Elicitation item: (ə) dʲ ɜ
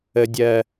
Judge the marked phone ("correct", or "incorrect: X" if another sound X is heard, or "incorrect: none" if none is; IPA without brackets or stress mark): correct